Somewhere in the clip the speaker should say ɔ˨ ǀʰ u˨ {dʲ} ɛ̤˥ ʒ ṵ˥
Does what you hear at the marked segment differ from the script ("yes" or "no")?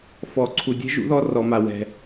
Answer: no